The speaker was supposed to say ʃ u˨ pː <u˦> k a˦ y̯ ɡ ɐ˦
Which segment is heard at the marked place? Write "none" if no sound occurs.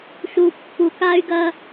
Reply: u˨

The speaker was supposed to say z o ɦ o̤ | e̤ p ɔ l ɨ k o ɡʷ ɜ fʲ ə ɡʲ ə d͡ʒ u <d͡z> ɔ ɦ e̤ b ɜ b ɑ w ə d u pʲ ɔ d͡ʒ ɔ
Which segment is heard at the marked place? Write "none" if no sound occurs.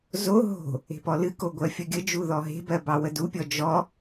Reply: ð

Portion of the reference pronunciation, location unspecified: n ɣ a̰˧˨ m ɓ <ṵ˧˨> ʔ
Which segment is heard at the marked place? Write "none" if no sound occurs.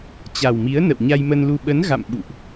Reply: ṵ˧˨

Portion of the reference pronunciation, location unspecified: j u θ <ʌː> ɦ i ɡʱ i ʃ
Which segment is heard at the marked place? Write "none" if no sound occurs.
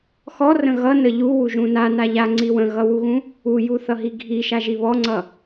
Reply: ʌ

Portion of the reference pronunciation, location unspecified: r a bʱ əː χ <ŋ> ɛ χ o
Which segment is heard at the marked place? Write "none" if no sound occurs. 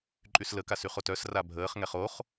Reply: ŋ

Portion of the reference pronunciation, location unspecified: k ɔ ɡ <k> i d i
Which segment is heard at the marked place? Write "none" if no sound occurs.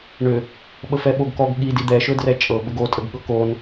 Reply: ɠ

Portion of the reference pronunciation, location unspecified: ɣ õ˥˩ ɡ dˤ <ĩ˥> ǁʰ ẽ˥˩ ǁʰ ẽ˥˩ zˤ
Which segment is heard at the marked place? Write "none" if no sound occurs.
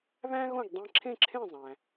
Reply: ĩ˧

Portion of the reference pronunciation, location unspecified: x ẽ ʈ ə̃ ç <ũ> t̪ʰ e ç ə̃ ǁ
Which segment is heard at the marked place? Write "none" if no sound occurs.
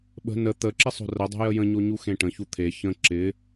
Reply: u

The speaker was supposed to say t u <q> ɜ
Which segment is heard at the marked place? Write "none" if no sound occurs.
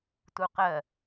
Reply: q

